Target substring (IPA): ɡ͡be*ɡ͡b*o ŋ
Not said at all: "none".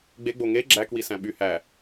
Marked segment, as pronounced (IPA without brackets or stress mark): ɡ͡b